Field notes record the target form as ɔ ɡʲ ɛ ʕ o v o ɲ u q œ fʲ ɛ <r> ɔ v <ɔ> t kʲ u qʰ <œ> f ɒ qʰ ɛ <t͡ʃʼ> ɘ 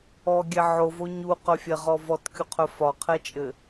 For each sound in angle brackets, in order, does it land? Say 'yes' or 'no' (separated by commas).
no, yes, yes, yes